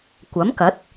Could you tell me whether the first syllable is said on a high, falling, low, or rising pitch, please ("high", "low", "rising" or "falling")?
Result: rising